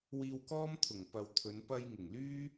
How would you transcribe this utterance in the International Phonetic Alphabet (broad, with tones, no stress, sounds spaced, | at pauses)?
w iː˧ w k ɔː˥ m t̪ʰ ʊ˨˩ ŋ p ɐ˨ w t̪ʰ ɵ˨˧ n p ɐ˧ j ŋ ɪ˨˩ ŋ l yː˥